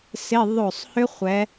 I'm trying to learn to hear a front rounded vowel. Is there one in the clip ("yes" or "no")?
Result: yes